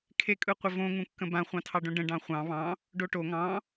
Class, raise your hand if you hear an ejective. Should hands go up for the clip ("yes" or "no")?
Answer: yes